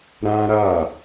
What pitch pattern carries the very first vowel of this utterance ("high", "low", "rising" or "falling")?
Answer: high